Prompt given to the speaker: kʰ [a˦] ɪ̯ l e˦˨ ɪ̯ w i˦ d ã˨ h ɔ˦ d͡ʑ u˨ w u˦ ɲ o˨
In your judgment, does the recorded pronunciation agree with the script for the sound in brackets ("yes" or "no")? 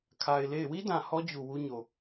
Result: no